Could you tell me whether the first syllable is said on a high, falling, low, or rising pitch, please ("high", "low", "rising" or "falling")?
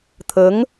rising